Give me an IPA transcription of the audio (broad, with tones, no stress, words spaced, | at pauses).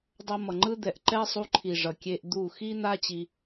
dˤʌ˧mʌ˨ŋ͡ǃɯ˦d̪ɛ˨ʔ ǃɛ˦sˤu˧ǃʰi˨ ʐʌ˨kʲe˧ʔ d̪u˦˨ xi˦ n̪a˦ t͡ɕi˧